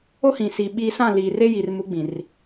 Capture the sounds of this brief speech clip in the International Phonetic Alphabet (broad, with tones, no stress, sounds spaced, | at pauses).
o˦ h ĩ˨ s i˨ ɓ iː˦ s ã˦˨ l iː˨ r e˦ j i˨ r m u˨˦ ɡ͡b ĩ˨ r